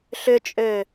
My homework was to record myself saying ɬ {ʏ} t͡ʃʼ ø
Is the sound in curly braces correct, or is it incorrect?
correct